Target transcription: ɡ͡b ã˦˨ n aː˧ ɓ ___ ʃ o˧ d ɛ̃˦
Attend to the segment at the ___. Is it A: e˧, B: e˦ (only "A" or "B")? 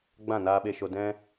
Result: A